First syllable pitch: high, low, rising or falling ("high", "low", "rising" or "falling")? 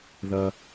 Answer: high